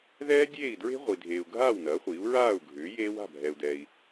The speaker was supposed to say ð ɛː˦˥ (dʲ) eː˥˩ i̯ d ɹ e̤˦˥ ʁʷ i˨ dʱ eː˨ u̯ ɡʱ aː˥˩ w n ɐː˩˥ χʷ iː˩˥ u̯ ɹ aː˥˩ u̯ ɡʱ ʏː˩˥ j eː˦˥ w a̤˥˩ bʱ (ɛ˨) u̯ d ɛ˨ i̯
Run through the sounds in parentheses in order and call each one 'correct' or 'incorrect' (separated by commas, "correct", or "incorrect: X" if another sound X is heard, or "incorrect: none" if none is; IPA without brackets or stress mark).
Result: correct, correct